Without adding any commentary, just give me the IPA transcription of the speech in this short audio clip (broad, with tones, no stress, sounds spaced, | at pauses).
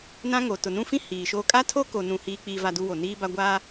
n ã˦ ŋ o˨ t ʊ˨ n ũ˦ f ĩ˦ h iː˨ ʃ oː˦ kʼ a˦ tʰ o˦ k o˨ n ũ˨ h iː˦ k͡p iː˦ v a˦ d u˦ w o˨ n iː˦ b a˦ ɡʷ a˦